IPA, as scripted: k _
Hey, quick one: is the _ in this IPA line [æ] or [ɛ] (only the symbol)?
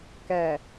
æ